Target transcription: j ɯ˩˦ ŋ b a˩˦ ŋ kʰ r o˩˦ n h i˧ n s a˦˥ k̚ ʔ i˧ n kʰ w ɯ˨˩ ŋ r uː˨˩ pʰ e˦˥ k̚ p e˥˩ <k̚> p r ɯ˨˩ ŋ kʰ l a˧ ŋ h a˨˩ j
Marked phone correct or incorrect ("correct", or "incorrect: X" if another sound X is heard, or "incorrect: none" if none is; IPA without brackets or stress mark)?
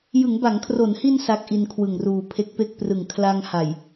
correct